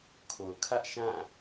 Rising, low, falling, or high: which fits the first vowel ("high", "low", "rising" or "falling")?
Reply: low